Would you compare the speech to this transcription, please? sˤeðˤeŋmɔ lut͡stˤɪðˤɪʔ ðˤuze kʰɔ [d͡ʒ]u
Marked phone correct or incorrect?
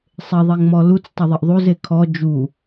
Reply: correct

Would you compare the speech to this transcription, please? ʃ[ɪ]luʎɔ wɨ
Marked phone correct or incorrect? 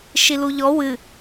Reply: incorrect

